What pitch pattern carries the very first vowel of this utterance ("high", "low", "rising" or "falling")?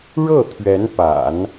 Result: falling